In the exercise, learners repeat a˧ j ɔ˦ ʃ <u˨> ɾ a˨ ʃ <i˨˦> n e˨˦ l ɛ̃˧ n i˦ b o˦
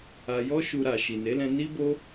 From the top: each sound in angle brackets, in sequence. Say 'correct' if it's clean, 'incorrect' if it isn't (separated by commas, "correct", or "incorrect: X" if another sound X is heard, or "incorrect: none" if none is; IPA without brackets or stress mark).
incorrect: u˧, incorrect: i˨